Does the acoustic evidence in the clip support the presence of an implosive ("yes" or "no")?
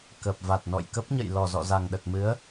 yes